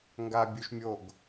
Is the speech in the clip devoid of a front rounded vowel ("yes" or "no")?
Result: yes